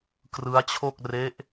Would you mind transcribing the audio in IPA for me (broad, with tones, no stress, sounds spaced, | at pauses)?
k r ɯ˦˥ a̯ t͡ɕʰ o˥˩ k̚ r e˦˥ ʔ